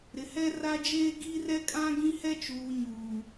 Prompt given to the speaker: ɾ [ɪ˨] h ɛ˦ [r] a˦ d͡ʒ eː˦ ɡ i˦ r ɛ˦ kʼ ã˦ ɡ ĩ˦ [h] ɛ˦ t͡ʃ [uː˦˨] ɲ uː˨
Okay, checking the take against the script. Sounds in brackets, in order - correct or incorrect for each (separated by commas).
correct, correct, correct, incorrect